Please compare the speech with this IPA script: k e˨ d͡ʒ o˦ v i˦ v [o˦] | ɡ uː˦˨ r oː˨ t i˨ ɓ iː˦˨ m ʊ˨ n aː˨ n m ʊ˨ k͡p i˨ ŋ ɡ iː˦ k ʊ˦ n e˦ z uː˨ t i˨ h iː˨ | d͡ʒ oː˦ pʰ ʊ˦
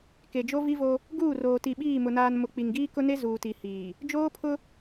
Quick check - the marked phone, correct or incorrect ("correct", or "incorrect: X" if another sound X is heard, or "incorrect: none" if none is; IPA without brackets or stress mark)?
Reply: correct